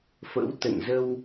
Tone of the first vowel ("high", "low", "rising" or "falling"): rising